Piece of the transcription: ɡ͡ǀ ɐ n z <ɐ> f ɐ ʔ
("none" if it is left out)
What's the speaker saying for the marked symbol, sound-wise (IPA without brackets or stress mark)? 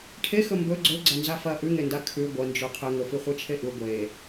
a